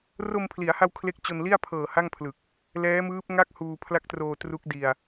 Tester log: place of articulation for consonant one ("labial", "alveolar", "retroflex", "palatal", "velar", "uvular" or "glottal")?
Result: alveolar